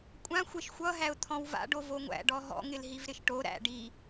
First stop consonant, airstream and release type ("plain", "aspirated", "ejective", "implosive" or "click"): ejective